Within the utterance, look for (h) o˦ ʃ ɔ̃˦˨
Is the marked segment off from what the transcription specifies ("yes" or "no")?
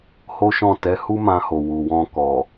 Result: no